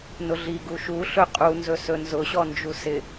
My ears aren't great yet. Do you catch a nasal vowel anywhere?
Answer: no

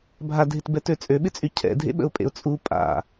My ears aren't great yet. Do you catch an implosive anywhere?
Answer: yes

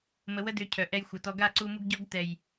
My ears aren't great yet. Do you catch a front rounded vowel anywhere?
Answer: yes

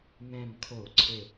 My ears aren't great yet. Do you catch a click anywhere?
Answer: yes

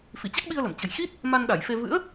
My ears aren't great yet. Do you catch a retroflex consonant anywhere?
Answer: no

